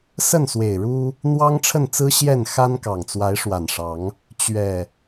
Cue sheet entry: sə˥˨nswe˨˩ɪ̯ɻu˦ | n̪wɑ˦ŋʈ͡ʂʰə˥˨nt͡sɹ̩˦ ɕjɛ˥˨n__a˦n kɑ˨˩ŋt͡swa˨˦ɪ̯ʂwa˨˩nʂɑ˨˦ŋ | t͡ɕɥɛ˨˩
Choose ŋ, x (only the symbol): x